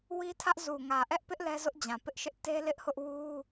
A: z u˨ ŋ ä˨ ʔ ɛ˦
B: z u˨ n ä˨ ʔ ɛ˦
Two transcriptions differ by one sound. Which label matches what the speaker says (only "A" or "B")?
A